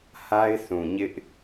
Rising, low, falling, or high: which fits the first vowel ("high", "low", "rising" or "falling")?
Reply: high